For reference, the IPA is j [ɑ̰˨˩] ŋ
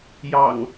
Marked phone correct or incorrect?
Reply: correct